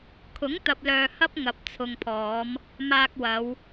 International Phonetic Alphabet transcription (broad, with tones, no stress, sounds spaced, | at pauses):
kʰ ʊ˨˥ ŋ t̪ ɐ˨ p̚ l œː˨ h ɐ˥ p̚ ŋ ɐ˨ p̚ t͡sʰ ʊ˨ ŋ pʰ ɔː˨˧ m | m aː˧ k̚ w ɐ˨˧ w